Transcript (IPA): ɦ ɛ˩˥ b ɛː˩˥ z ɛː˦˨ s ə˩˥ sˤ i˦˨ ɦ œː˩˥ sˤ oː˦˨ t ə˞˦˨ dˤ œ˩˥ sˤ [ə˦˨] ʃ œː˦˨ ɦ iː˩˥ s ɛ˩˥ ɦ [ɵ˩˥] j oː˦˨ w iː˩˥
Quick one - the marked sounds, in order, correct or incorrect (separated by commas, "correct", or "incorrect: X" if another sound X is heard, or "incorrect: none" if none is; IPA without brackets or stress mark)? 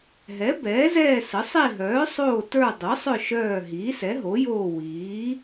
incorrect: œ˦˨, incorrect: o˩˥